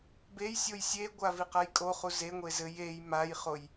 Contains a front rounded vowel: no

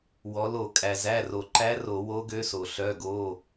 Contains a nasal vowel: no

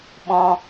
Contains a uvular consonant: no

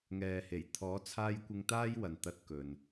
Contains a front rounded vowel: no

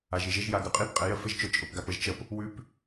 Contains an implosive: no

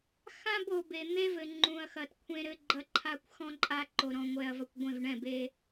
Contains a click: yes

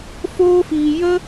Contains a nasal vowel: no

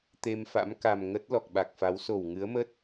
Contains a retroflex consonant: no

